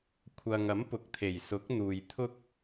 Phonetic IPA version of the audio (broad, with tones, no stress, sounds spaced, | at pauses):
kʷʰ ɐ˨ ŋ ɐ˨˥ m p ʊ˨ k̚ t̪ʰ e˨˩ j s ʊ˨˥ k̚ n̪ uː˨ j t̪ʰ ʊ˥ k̚